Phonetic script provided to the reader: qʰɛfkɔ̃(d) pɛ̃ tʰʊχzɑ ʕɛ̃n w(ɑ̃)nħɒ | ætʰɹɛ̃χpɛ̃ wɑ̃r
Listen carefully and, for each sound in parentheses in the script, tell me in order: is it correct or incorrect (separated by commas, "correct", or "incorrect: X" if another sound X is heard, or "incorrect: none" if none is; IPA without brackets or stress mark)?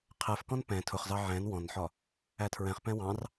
incorrect: n, incorrect: ɔ̃